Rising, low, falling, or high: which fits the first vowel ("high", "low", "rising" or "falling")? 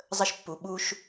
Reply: high